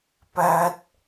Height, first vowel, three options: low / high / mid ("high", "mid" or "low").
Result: low